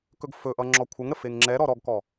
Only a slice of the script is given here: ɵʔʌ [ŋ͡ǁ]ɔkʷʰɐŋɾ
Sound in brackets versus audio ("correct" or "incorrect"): correct